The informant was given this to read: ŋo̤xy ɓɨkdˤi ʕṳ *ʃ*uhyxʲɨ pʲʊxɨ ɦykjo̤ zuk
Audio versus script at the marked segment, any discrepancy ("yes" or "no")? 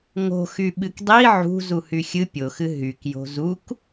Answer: yes